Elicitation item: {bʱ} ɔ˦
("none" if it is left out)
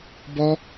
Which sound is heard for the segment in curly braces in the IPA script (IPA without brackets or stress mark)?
b